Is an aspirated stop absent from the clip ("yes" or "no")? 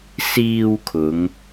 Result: no